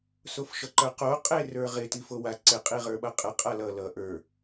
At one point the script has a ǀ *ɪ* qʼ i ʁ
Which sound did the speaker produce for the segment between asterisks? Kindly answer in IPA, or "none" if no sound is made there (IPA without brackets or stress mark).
ɪ